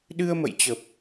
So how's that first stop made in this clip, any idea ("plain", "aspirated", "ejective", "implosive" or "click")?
implosive